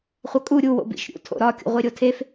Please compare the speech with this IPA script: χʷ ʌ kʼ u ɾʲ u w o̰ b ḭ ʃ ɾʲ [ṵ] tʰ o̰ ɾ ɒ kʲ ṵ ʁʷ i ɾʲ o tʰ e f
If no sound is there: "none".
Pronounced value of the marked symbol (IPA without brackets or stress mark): ṵ